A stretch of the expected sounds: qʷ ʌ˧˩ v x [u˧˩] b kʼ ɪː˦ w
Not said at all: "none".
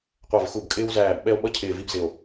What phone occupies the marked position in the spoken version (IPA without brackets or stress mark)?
u˧˩